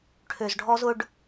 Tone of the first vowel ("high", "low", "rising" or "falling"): low